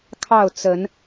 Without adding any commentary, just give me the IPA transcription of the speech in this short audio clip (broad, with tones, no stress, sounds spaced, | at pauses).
kʰ ɑ˥˨ ʊ̯ t͡s ə˨˦ n